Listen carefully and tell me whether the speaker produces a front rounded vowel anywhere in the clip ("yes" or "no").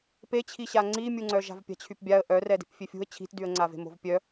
yes